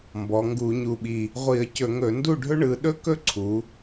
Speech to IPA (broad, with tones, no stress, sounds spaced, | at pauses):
m b ɔ˩˧ ŋ ɡ u˧˩˧ ɲ u˨˩ ɓ i˨˩ | ʁʷ i˧˩˧ ə̯ c ɵ˧˩˧ ŋ ɵ˧˩˧ n d u˥˩ ɖʱ ɵ˥ ɳ ɯ˩˧ ɗ ɵ˥ k ɵ˥ ǀʰ u˩˧